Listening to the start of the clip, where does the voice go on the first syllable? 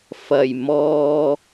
low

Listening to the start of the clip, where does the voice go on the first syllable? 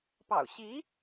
low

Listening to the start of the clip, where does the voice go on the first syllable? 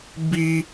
high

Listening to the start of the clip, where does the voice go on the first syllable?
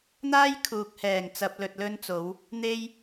high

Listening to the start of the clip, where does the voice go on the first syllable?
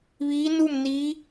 rising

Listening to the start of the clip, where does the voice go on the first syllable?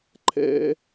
high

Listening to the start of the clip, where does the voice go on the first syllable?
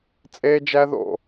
high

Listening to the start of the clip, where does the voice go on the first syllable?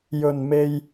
low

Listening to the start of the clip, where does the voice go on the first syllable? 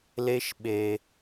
high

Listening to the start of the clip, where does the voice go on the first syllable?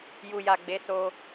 low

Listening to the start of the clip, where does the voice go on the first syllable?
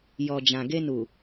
low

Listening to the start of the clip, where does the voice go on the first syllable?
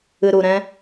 low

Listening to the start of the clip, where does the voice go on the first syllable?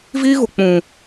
high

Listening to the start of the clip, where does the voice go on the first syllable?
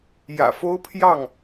low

